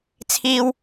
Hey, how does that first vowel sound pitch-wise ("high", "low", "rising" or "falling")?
high